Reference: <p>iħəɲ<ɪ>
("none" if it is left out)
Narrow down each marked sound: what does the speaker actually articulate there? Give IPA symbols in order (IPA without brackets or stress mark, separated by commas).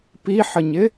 p, ɪ